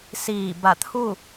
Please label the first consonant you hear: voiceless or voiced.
voiceless